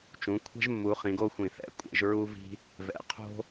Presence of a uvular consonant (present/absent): present